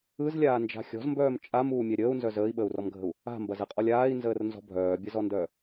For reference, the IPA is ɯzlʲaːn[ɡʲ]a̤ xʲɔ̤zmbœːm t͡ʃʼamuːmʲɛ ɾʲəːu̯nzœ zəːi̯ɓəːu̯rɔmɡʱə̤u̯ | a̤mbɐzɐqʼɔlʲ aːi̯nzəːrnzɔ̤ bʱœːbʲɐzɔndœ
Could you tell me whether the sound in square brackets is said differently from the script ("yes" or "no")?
yes